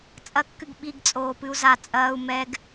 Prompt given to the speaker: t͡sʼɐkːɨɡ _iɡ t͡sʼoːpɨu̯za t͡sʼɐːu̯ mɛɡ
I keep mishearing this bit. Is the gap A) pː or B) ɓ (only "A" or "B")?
B